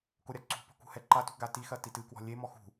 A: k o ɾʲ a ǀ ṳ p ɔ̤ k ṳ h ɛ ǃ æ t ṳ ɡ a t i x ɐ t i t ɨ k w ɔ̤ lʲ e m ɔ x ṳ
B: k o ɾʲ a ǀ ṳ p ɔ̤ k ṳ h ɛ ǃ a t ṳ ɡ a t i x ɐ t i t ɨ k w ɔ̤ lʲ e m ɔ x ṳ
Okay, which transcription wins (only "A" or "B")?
B